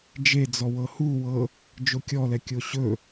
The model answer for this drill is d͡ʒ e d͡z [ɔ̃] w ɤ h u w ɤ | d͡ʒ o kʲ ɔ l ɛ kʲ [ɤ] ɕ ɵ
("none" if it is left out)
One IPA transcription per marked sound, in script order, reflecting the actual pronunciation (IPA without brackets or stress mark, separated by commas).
ɔ, o